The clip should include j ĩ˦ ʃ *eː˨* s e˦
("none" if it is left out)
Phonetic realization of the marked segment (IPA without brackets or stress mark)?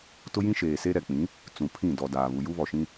eː˨